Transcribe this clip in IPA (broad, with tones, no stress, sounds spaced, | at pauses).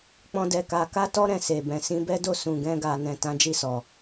k͡p ɔ̃˦ d ɛ˧ k a˧ k a˦ t ɔ˦ ɾ ɛ̃˦˨ s e˨ b ɛ̃˨ s ĩ˧ b ɛ˦ d o˦˨ s ũ˨ ɡ ɛ̃˧ ɡ a˨ n ɛ̃˨ t ã˨˦ d͡ʒ i˦˨ s ɔ˨